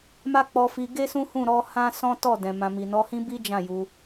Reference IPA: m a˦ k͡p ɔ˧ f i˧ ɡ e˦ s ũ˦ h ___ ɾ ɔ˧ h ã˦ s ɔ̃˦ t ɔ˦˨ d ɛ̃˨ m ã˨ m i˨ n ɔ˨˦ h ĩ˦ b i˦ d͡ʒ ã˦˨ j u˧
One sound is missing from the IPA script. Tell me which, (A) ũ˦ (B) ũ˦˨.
B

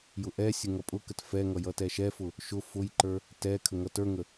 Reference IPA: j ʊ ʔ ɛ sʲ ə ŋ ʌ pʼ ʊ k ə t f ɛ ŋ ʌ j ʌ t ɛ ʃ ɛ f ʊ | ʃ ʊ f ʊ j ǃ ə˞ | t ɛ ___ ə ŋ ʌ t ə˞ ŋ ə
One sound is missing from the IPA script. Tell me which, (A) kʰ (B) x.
A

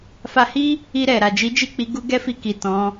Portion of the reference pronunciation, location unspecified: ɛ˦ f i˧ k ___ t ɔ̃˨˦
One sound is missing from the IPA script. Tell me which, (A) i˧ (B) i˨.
B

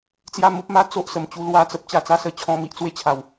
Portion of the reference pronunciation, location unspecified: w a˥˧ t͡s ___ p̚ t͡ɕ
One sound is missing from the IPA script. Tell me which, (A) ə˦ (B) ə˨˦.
A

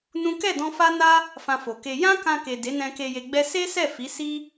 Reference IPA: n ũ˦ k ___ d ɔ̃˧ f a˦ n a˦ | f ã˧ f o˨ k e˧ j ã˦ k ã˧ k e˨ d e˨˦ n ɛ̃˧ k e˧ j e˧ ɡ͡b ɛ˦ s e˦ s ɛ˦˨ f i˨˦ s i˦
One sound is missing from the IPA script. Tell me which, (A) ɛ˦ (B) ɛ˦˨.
B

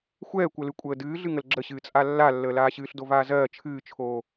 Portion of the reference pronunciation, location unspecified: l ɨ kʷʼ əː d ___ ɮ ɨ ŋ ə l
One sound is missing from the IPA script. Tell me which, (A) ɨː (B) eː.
A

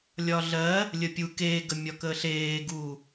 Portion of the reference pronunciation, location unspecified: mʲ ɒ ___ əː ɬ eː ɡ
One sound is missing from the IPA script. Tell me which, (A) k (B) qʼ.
A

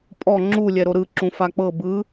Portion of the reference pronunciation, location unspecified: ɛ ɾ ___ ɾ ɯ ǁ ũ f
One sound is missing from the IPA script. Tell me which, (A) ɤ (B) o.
B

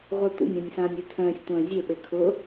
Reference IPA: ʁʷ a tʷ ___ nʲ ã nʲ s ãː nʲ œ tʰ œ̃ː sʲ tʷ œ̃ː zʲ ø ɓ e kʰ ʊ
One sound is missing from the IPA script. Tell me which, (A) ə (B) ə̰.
B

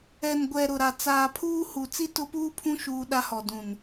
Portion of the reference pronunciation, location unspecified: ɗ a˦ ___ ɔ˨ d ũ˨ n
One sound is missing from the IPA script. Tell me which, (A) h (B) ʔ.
A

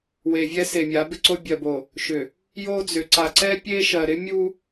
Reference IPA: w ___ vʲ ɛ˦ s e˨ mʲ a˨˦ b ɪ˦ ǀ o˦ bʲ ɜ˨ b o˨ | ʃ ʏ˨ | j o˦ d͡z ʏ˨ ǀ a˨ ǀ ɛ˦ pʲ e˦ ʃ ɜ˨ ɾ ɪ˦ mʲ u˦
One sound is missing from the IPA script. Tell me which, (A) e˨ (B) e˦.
A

